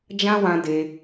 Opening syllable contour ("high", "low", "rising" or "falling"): high